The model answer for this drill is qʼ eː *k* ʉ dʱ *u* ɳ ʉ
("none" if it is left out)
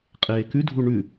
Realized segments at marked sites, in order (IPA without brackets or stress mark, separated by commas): k, u